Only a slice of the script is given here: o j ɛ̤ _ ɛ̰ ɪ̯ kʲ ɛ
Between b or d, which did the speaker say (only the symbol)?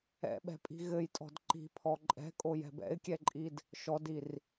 b